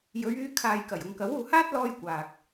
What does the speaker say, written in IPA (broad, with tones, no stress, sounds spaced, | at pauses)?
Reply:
j ɵ˨˧ ɥ yː˧ kʰ aː˨ j k ɐ˨˩ j ʊ˨ ŋ k ɐ˨˥ w uː˨ h aː˥ t̚ l ɔː˥ j kʷ aː˨ k̚